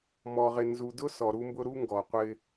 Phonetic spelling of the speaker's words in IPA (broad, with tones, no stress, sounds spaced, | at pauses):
m ɔ˨ ʁ ɪ˨ n z u˨ d ʊ˦ s ɔ˨ ɾ u˦ m b ʊ˦ ɾ u˦ ŋ ɡ ɔ˨ qʷ ɪ˦